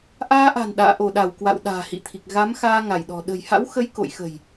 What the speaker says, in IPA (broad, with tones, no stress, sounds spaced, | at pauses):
ʔ aː˧ ʔ a̤˨˩ n ɗ a̰ː˧˨ ʔ o˧˩ ɗ a˧˩ w k w a̰˧˨ w ɗ a̤ː˨˩ h ḭ˧˨ t̪ʰ i˨˩ k̚ ɣ a˨˦ m x aː˧ ŋ a˧˩ j ɗ ɔ̤˨˩ ɗ ə̤˨˩ j h a̰˧˥ w x ə˨˦ j k o̰˧˨ j x ə̤˨˩ j